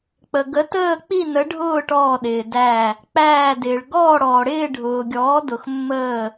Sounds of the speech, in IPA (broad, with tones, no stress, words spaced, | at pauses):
k͡pə˩ɡə˩˥ təː˥˨k͡pi˥˨nə˩˥ɖʱʊː˥˨ ʈɔː˧˩ɗɪː˩dæ˧˩ | k͡pæː˧˩dɪː˩ɭ ɡɔː˥˨ɽɔː˩ɽɪː˥˨ ɖʱʊː˩ɡʲɔː˩˥dʊ˩x mːəː˧˩